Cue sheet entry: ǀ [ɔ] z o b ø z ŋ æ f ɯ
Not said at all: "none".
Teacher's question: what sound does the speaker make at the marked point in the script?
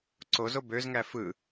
o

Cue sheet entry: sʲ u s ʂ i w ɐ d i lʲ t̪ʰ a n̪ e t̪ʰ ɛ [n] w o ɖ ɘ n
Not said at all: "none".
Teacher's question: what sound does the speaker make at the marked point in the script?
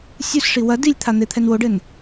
n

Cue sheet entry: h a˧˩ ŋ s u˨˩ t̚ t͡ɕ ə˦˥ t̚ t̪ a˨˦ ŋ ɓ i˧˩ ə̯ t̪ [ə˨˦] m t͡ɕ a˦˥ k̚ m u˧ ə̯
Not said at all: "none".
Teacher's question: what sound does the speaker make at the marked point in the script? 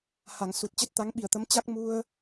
ə˨˦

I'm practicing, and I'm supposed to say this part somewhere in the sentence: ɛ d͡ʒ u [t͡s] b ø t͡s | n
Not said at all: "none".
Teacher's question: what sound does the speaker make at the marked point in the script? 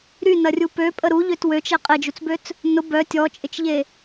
t͡s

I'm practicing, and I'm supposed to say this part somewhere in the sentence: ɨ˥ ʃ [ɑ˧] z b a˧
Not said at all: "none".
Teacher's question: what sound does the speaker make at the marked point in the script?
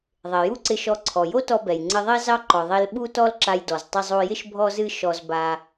ɔ˧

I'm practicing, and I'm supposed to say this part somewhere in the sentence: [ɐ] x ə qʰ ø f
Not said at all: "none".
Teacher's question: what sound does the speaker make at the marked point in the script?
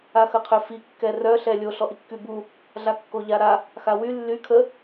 a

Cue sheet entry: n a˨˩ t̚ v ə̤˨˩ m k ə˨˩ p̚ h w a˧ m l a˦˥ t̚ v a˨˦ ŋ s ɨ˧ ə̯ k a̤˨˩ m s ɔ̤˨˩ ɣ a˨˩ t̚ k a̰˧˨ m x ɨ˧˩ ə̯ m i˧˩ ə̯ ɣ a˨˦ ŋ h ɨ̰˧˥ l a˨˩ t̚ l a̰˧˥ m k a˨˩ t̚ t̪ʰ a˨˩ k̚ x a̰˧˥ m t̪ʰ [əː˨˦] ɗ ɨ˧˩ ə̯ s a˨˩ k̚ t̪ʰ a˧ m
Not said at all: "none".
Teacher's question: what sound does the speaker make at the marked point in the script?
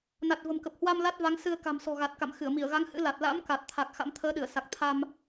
əː˨˦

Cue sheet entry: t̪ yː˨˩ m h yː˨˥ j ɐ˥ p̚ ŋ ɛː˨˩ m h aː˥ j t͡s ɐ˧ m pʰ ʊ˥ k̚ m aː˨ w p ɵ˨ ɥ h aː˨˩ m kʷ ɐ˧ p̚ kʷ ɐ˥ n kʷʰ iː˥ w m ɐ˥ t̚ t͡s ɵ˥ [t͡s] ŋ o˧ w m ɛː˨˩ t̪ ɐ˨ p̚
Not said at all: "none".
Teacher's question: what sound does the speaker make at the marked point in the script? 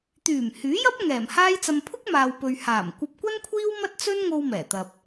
n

